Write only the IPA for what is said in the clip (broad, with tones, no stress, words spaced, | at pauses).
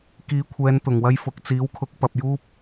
kiː˨˧kʷʰɛː˨˧nt̪ʊ˨˩ŋ wɐ˥jfʊ˨˥k̚ t͡siː˨˥wkʰʊ˨˥k̚ pɐ˨p̚juː˥p̚